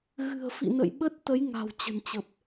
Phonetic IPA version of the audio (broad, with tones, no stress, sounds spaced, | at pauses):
ɣ ɨ̤˨˩ ə̯ f ḭ˧˨ n ə̰˧˨ j ɓ ə˦˥ t̚ t̪ ə˨˦ j ŋ a̤˨˩ w t͡ɕ ə̤˨˩ n t͡ɕ ə˨˩ p̚